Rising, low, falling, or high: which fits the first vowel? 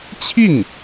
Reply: falling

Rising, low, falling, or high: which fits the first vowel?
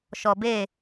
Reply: low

